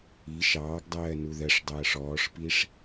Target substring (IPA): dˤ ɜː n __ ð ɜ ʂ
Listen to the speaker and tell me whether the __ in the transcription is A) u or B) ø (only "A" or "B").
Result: A